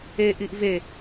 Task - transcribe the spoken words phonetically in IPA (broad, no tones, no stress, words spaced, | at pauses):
eʔiʔ ve